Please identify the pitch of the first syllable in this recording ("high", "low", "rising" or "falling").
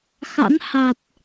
rising